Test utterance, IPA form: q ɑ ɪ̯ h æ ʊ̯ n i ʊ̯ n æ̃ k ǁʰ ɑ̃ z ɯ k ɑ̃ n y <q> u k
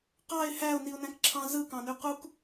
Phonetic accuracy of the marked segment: correct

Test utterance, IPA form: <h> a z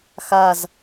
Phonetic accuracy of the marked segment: incorrect: x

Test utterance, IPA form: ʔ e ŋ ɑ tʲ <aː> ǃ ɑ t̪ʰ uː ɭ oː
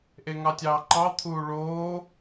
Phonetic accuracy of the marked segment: incorrect: ɑː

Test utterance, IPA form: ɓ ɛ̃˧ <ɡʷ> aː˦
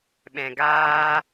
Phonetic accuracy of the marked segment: incorrect: ɡ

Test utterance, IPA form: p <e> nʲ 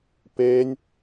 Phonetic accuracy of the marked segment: correct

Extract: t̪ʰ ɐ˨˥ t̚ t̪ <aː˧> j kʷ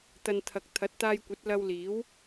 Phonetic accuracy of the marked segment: correct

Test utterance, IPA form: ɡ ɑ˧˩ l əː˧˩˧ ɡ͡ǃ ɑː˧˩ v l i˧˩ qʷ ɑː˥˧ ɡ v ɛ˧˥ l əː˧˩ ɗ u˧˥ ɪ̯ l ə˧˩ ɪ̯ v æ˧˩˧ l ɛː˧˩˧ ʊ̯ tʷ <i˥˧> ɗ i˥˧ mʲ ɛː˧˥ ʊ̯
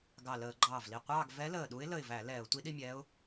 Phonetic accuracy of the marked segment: incorrect: i˧˥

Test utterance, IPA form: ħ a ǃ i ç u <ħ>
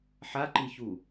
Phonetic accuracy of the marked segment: incorrect: none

